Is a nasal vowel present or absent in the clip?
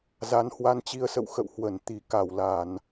absent